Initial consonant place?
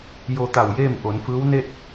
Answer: palatal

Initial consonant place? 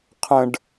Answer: uvular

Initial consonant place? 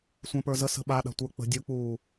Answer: alveolar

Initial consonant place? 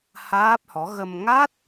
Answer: glottal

